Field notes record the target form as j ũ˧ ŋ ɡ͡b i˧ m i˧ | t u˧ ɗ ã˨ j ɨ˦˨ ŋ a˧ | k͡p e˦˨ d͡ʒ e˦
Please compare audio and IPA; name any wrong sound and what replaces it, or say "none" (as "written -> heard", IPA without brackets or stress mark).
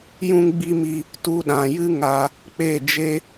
ɨ˦˨ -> ɨ˦